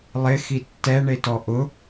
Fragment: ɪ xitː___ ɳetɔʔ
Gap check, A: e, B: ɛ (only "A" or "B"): B